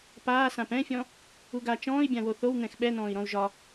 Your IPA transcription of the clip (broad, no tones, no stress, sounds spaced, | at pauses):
p aː s ã p ɛ̃ fʲ ɔ̃ | u ɡ a t͡ʃ ɔ̃ː i̯ bʲ ã w o θ o w n̪ ɛ̃ x ɓ ɛ n ɔ̃ː i̯ ɾ ɔ̃ u̯ ʒ ɒ